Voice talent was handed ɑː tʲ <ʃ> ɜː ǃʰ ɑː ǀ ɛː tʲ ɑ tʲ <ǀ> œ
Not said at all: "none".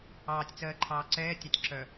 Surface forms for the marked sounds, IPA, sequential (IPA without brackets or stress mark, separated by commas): t͡s, ǁ